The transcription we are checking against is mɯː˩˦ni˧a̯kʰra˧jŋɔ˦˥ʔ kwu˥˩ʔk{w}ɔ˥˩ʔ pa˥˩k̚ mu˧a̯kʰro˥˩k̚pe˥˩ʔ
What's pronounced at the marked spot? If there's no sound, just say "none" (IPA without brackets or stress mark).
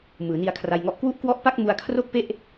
w